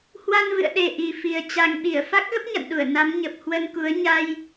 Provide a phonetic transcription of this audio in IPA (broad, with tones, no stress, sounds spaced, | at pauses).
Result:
h w a˧ n v ɨ̰˧˨ ə̯ ɗ e˨˩ ʔ i˨˩ f i˨˩ ə̯ t͡ɕ a˨˩ ŋ ɓ i˧˩ ə̯ f a˦˥ k̚ ɣ ə˦˥ p̚ ɲ a̰˧˨ n ɗ u˧˩ ə̯ n a˨˦ m ɲ ə˨˩ p̚ h w ə˧ n k u˨˦ ə̯ ɲ a˧ j